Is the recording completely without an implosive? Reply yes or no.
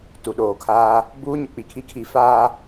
no